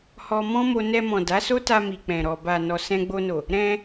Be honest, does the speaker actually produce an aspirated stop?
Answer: no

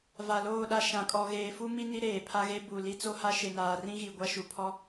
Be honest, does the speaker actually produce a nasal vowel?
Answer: yes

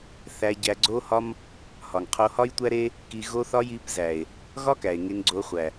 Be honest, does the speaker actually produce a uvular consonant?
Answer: yes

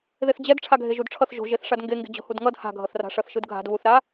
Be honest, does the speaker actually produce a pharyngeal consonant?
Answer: no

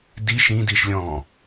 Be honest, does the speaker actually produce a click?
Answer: no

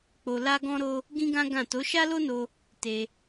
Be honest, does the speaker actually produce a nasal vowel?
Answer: yes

